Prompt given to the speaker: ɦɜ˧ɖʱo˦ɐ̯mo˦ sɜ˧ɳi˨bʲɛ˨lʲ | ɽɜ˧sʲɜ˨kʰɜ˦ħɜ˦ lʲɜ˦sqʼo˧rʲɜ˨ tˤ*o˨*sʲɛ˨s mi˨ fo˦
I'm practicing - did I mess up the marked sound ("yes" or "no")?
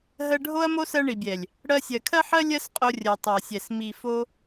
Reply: no